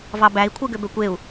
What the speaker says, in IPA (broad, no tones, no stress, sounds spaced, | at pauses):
v ɑ b æ i̯ kʷʰ ɯ ɡ ø b ø kʷ e u̯